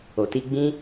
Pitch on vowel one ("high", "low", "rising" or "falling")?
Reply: low